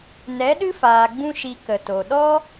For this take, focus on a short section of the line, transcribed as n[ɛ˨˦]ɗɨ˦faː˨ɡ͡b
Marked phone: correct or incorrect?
correct